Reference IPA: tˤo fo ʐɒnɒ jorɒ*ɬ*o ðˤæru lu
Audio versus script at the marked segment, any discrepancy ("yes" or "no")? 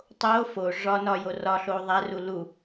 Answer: no